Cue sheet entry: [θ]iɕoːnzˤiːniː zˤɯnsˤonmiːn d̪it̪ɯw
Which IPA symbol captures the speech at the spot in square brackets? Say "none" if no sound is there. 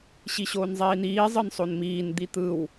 ɕ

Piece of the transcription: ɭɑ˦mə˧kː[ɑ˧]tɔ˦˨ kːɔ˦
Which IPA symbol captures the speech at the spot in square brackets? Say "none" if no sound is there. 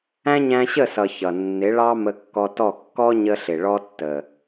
ɔ˧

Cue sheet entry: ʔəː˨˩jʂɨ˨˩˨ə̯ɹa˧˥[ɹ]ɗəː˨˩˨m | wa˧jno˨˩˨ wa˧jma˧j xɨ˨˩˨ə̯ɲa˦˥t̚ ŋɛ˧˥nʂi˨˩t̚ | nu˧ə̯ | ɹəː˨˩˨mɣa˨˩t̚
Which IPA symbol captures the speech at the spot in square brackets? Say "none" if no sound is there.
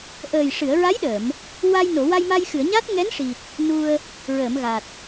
j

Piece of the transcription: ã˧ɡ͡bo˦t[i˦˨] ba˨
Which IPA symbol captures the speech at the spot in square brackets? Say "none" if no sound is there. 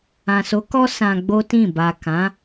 ĩ˦˨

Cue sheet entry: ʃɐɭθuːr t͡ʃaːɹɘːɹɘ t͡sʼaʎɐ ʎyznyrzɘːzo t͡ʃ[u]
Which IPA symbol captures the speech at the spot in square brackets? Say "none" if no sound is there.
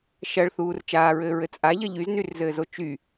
y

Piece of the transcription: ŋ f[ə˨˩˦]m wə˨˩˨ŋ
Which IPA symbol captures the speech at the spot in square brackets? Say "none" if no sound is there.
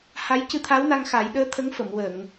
ə˨˩˨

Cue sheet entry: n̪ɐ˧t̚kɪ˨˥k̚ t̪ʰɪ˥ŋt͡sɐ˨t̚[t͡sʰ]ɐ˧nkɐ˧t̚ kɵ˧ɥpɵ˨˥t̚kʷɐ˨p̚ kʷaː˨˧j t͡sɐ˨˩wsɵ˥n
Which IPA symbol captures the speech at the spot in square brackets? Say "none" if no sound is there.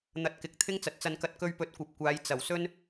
t͡s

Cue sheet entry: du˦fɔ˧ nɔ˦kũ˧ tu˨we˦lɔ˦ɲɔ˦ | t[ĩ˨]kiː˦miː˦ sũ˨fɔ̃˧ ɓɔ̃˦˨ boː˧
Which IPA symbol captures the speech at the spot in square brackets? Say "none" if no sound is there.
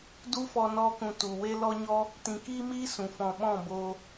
ĩ˨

